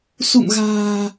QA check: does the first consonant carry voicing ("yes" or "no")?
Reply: no